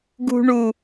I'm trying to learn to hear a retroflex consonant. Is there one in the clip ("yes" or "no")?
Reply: yes